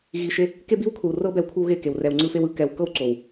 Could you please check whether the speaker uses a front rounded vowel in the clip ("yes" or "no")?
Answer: no